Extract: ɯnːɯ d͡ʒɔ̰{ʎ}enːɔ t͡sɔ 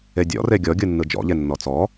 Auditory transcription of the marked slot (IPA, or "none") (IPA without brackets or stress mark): ʎ